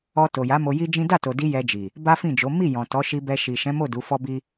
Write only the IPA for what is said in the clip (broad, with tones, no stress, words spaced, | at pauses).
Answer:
ɔ˧ to˨ja˨˦ mo˧ji˦d͡ʒĩ˦ da˦˨to˨di˧ jɛ˧d͡ʒi˨ | ba˦fĩ˦˨d͡ʒo˨˦ mi˦˨ jɔ̃˨tɔ˨˦ʃi˧bɛ˧ ʃi˨ ʃɛ̃˨˦mo˦˨ du˨˦fɔ˦bi˦